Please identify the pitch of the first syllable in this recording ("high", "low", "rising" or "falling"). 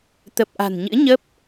low